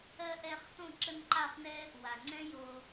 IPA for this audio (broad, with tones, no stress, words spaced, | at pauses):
ɜ˧ʔɛ˧χ tõ˦˨ǁə˧nǃa˦˨χnɛ˦ | wa˨ŋ͡ǀɛ̃˦jo˧